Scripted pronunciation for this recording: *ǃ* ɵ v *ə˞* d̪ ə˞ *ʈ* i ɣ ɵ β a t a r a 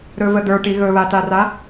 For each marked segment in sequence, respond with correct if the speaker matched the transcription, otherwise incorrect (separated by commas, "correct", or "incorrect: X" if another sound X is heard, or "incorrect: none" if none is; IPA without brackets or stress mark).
incorrect: ɾ, incorrect: ə, correct